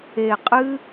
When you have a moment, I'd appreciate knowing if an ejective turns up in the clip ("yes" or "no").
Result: yes